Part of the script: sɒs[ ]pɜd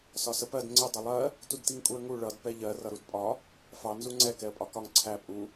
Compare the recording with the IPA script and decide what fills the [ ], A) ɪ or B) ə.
B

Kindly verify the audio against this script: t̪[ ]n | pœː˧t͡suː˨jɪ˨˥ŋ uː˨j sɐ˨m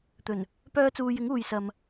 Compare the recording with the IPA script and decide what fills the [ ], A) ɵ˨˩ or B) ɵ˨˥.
A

